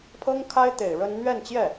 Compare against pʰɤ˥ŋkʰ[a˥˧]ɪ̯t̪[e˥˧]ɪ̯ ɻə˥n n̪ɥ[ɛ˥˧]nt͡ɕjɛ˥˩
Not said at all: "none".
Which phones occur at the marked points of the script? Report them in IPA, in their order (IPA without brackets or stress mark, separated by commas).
a˥, e˨˩, ɛ˥˧